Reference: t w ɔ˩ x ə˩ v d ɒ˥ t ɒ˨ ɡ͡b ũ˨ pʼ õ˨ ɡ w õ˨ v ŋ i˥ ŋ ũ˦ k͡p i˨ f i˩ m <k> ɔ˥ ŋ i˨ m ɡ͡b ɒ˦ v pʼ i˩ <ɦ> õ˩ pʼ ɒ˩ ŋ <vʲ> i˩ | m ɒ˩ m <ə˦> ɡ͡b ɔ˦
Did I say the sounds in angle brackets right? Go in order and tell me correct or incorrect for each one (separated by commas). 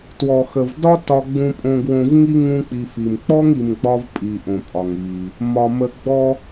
incorrect, incorrect, incorrect, incorrect